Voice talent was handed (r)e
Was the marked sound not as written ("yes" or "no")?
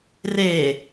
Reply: no